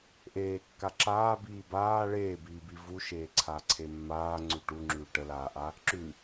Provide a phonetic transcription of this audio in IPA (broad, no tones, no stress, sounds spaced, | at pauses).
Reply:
ʔ eː kː a ǁ aː b iː b aː ɭ eː b iː b i v u ʃ eː ǀʰ a ǀʰ e mː aː ŋ͡ǀ ʉ ʈ u ŋ͡ǁ ʉː ʈ ə l aː ʔ a | ǁ ʉ